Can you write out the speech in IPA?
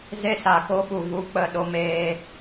ze˧sa˨ko˧ɓu˨ vu˨˦k͡pə˨ ɗo˧meː˧

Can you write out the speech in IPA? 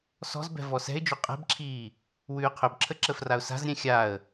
sɔ̤zbɛ̤ vɔsɛ̤ɪ̯d͡ʒɵ qʼɛ̤bǁʰiː | wʉːqʰɵbǁʰə ǁəfraʊ̯sa̤zɾʲɛ̃ xʲaə̯

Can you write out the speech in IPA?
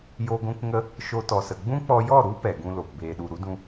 jo˧ɡʷũ˧kŋə˧ | ʃo˧tɔ˨sə˨ ɡ͡bũ˦k͡pɔ˧jɔ˦˨ɾu˦ pɛ˨ɡũ˧ lo˨p beː˨ɗu˨ɾu˦dũ˧

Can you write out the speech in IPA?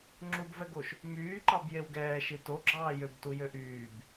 ŋ͡ǁubvɛɡoʃ | myːǃɑb jewɡɛː ʃitoɡ͡ǁɑː jøbtu jøʔyːb

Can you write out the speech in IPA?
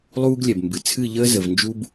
lˠuː˦ɡlʲɛ˨bmbɨ˨ t͡sʰɨ˦˨ʎəː˦zə˨v nd͡ʒu˦b

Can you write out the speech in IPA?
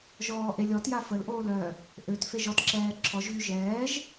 ʒɔːʔelʲɔtja fəlʔoːl œ | ʔøt feʒɔtǁɛː ǁʰɔʒɣy ʒɛːʒ

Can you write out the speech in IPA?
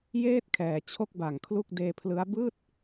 jeː˥˩t̚kʰɛː˨˩ t͡ɕʰo˥˩k̚ba˨˩ŋkʰlu˥˩k̚ deː˧pʰlɯ˦˥a̯ bɯː˥˩t̚

